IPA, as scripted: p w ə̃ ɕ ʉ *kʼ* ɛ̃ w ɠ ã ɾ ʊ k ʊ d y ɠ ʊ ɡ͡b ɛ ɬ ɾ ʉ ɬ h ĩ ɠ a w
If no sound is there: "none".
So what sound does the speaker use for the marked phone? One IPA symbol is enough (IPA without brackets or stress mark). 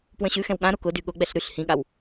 x